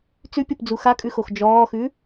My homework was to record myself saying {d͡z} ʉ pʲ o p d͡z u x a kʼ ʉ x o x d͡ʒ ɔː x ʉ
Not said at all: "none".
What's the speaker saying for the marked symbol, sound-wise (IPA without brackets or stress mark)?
t͡s